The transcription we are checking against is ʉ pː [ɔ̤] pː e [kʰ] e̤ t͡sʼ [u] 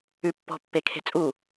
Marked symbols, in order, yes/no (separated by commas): yes, yes, yes